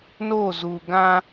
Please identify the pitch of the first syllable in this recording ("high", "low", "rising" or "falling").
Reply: falling